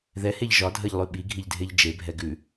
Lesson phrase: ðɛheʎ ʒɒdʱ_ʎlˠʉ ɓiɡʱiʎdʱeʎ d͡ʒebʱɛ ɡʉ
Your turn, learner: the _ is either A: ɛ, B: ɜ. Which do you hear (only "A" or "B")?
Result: B